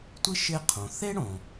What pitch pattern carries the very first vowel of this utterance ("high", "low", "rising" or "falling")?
high